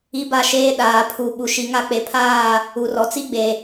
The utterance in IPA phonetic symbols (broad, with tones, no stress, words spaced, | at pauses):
i˦ba˦ʃeː˦ ɗaː˨pʰu˨ ɓu˨ʃi˨˦ŋa˦ k͡pe˨ pʰaː˦˨ | u˨rɔ˨t͡si˦ɡ͡be˨